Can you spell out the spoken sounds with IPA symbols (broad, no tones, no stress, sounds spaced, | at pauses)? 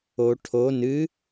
o ʈʰ o n ɨ